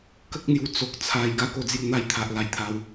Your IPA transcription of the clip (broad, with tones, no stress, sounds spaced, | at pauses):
k ə˦ k̚ n̪ j u˧ t͡s o˨ k̚ t͡sʰ a˧ j ɡ a˦ k o˧ d͡z j u˧ n̪ a˦ j t̪ʰ a˨ ʔ l a˧ j t̪ʰ a˧ w